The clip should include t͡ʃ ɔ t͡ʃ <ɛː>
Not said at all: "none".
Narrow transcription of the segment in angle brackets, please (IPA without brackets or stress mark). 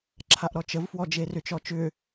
ʏː